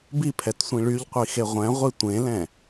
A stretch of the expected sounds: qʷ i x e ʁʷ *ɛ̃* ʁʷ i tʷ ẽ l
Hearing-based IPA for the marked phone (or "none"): ɛ̃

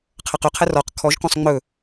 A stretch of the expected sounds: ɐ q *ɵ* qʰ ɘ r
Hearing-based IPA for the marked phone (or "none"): ɵ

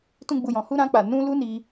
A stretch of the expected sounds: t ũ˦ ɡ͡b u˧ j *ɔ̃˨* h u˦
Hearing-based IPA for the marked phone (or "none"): ɔ̃˧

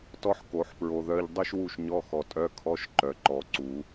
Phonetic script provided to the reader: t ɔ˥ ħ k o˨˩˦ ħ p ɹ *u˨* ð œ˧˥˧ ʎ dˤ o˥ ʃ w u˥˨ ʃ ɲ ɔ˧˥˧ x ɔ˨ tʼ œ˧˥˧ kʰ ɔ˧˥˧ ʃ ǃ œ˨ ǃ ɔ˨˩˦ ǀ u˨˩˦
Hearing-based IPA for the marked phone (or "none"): o˨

